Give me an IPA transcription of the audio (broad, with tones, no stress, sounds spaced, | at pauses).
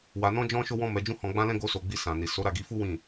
w a˧ n ɔ̃˦ d͡ʒ ɔ̃˦ ʃ o˦ w ɔ̃˦ m ɛ˧ d͡ʒ ũ˦ h ɔ̃˧ ɡ͡b ã˦ l ɛ̃˦ ɡ o˦ s o˧ ɡ͡b i˧ s ã˨ n i˨ s o˨˦ ɾ a˦˨ ɡ i˧ f u˦ w ĩ˦˨